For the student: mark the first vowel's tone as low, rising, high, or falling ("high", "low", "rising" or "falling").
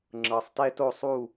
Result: low